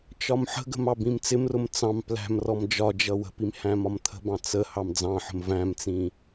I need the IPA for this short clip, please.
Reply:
t͡ʃɒmħə̤ɡə̤m ɑbĩmt͡sɪmrʊm t͡sɑ̃m plæ̤mrɔm d͡ʒɒd͡ʒʌ wə̤pim hæ̃mɒmt̪ʰə̤bɑ̃ t͡sə hɑmd͡zɑ̃ħə̤m væ̃mt͡sĩ

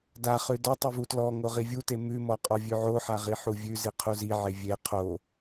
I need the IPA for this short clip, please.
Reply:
daχʉ dɔtˤʉvu tlɔŋo ʁivʲute mʉmɔqʼɔ vʲʉʕoħaʁi ħuvʲʉ ziqʰuziʕe vʲe qʰo

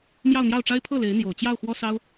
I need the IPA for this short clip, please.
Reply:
mjɑ˥˧ʊ̯n̪jɑ˥˩ʊ̯ʈ͡ʂa˥ɪ̯ pʰɤ˥˩ le˧˥ɪ̯n̪jo˨˩ʊ̯ t͡ɕjɑ˥˩ʊ̯xwɔ˥sɑ˥ʊ̯

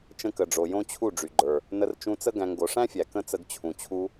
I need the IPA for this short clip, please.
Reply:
t͡ʃə̃˧kə˨ɖ͡ʐo˨ jõ˦t͡ɕʰu˦˨ ɖ͡ʐy˨ɡ͡ǃə˞˨ | nə˧rt͡ʃũ˧t͡sə˦ ɡæ̃˧ŋ ɡo˨ʂæ̃˦fʲæ˨ kə̃˦t͡sə˧ɡ t͡ɕʰũ˨t͡ɕʰu˧

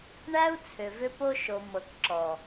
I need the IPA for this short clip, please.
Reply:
ɳæ˦u̯ t͡sʰʏ˨vʏ˦po˦ ʃo˨mɤ˨kǁɔ˨

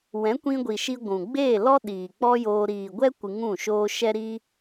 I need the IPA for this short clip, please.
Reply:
wɛ̃˨˦kʷĩ˧ɡʷi˨ʃi˧ ɡʷũ˨ ɡ͡beː˦˨lɔ˦ ɗiː˨k͡pɔ˦joː˧ ɾiː˨ɡʷɛ˦ kʷɨ˧ŋũ˦˨ʃoː˦ ʃɛ˦ɾi˦

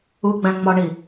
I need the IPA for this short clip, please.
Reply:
uɡ͡bæ̃ ŋ͡mɒɳi

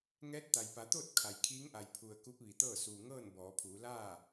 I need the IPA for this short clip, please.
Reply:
ŋɛː˧˥t̚t̪a˩jpa˩˧t̪oː˥˨t̚ kʰa˩jkʰiː˧˥ŋʔa˩j pʰu˩ə̯ ku˧˥p̚ʋi˩t̪ɤː˥˨ suː˩ŋɤː˥˨n bɔː˩˧pʰuː˩˧ laː˥˨

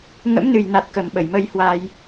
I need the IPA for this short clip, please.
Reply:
ŋə̰˧˥mnɨ˨˩jna˨˩t̚ kə˨˩mɓə˧˩jmə˧jhwa˧j

